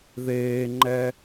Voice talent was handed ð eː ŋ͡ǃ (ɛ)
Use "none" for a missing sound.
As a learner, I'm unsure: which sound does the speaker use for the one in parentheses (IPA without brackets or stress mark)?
ɛ